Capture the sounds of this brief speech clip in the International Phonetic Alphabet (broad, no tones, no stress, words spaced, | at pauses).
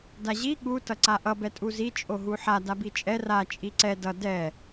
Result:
daʑi ɠu tʌǀaʔʌ bɛtʼuzi t͡ʃʼoɦuħa dabit͡ʃʼɛ ra t͡ʃʼiǀɛ dʌ dɛ